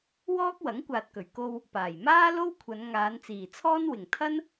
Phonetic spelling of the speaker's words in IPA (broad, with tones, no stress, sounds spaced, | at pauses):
w ɔː˥ k̚ w ɐ˨˥ ŋ kʷ aː˨ t̚ k ɵ˨˩ ɥ k o˧ w | p aː˨˩ j m aː˥ l o˥ w kʷʰ ɐ˨˧ n ŋ aː˨˧ n t͡s iː˨˩ t͡sʰ ɔː˥ n w ɪ˨˩ ŋ t̪ʰ ɐ˥ n